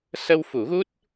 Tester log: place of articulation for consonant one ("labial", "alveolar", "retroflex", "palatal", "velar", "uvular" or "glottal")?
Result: alveolar